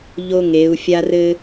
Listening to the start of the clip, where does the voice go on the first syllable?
high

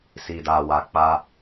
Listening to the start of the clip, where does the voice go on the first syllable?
low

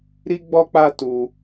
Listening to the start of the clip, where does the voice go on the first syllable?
high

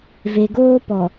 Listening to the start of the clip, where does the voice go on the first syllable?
low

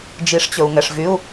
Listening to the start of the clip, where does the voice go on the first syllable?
rising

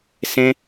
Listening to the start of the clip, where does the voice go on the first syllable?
high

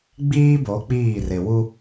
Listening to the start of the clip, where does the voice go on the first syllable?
high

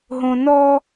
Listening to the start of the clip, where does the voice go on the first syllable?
low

